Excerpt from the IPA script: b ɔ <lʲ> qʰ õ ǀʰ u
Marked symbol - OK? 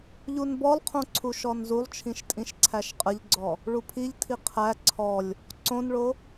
no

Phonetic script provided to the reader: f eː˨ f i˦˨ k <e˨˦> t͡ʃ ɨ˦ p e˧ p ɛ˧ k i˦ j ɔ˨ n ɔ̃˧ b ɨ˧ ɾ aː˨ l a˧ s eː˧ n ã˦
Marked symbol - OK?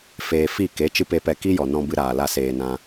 yes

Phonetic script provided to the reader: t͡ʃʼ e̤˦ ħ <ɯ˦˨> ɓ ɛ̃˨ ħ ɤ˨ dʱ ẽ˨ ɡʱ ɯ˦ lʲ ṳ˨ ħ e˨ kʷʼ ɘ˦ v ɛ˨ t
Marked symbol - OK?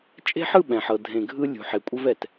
yes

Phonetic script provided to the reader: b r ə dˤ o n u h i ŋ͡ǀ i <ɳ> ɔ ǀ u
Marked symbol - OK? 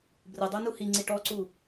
no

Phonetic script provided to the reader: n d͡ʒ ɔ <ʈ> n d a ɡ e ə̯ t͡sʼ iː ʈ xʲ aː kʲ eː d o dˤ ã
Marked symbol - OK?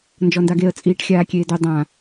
no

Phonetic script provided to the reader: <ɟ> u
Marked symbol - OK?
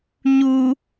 no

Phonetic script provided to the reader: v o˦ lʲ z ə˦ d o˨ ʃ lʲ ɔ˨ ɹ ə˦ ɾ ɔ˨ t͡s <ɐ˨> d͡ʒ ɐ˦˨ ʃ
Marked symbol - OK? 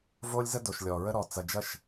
yes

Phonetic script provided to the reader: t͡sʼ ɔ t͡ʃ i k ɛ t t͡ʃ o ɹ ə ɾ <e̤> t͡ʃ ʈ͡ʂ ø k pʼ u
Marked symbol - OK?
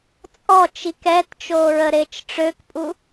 no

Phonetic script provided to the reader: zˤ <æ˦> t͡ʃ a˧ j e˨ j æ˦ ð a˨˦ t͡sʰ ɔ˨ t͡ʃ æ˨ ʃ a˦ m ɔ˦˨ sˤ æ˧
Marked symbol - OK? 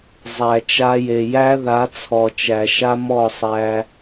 no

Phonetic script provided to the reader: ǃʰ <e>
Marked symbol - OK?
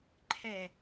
no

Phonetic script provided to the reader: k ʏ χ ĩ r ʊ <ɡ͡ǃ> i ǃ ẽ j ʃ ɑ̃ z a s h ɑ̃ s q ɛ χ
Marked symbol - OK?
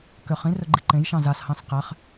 yes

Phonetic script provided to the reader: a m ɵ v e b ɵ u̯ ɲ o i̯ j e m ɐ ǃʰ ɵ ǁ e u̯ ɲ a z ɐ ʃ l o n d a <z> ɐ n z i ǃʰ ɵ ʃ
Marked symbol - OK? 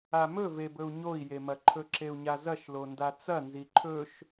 no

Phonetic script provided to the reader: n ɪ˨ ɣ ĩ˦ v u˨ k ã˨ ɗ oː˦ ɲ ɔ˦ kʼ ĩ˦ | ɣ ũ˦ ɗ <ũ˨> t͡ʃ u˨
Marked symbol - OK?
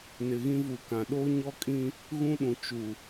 yes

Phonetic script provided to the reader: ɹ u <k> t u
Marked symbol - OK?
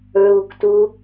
yes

